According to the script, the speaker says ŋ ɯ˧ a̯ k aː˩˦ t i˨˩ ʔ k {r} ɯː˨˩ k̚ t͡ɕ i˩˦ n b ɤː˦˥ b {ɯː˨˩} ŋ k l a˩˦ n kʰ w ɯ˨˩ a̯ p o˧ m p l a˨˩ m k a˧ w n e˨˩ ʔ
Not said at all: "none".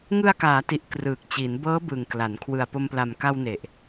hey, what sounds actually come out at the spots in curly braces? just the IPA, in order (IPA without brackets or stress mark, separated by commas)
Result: r, ɯ˨˩